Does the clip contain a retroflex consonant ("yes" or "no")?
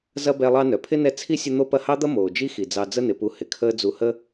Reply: no